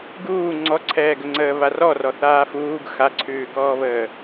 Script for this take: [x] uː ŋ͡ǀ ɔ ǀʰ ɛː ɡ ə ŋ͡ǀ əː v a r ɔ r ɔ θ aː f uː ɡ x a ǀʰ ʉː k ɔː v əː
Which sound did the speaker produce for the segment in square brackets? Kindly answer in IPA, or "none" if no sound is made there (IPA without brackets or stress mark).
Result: ɡ